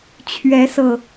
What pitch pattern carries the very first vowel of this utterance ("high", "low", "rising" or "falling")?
rising